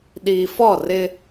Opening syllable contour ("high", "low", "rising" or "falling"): low